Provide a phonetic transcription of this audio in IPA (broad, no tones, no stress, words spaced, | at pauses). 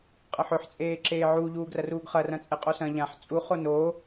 qʼɐħɵħ t͡sʼeːǁeːʕu ʎuːɡrɐruːɡχɐ rɐ̃t͡sʼeqʼosɐ̃ ʎãħ t͡sʼu χonoː